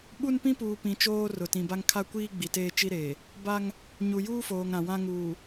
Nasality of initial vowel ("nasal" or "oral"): oral